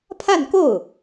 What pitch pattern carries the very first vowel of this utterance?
falling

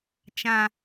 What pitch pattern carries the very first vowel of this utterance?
low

